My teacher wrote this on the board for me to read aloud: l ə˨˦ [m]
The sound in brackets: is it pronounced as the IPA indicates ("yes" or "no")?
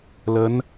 no